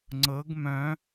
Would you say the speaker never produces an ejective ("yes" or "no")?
yes